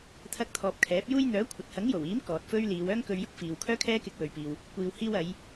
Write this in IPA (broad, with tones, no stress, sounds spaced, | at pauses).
t̪ʰ ɐ˧ k̚ t̪ʰ ɔː˨ p̚ kʰ ɛː˨˥ p̚ j uː˥ j n̪ œː˨˥ kʷʰ ɐ˨ t̚ h ɐ˨˥ ŋ j o˨˩ w iː˨˥ m k ɔː˨ t̚ f ɵ˥ ɥ l iː˨˧ w œː˥ ŋ k ɵ˧ ɥ j ʊ˥ k̚ f iː˨ w kʰ œː˥ kʰ ɛː˥ k ɪ˧ k̚ w ɵ˨ ɥ p iː˨ w | kʷ iː˨ w h iː˧ w ɐ˨˧ j